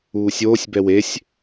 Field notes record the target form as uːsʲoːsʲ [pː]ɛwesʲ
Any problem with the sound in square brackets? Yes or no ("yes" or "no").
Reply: yes